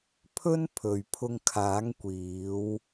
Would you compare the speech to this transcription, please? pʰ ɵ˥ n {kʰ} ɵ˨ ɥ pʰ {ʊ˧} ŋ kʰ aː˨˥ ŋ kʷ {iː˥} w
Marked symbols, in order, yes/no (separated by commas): no, yes, no